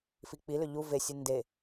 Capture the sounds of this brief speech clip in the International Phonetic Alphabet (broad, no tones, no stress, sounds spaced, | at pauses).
f i k͡p i l ʏ ʎ u v e sʲ ɨ n d e